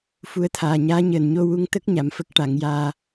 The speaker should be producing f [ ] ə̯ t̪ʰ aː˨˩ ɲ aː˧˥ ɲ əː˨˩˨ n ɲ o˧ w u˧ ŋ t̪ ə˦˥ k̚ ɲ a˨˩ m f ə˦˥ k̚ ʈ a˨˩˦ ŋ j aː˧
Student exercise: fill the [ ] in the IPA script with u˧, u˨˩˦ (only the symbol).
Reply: u˧